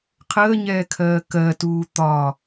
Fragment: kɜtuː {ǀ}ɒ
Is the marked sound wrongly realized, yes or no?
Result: yes